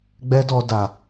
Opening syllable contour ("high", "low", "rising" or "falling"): high